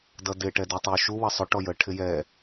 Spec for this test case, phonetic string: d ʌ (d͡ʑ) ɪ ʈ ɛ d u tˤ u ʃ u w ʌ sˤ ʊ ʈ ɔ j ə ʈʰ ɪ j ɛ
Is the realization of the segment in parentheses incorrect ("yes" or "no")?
yes